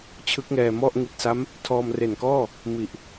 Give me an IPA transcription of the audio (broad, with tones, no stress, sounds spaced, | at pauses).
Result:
t͡ɕʰ ɯ˦˥ k̚ ŋ ɛː˧ m ɔ˥˩ ʔ ŋ i˨˩ t̚ s a˦˥ m | tʰ ɔː˧ m r e˨˩ n k ɔː˥˩ | m i˨˩ ʔ